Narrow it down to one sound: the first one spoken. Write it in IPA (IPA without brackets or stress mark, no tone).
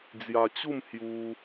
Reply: d͡z